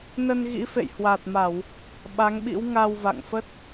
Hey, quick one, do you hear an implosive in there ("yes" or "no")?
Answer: yes